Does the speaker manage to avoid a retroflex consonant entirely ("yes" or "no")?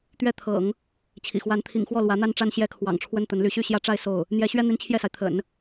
no